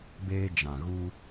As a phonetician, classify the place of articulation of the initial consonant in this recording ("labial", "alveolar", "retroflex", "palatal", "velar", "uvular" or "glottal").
labial